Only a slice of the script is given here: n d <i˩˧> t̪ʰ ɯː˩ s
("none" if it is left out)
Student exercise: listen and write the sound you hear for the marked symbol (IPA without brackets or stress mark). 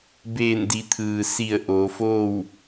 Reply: i˩˧